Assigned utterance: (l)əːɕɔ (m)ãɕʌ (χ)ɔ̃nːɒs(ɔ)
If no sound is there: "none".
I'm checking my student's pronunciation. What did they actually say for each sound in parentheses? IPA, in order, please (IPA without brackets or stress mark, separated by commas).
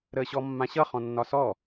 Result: ɾ, mː, χ, ɔ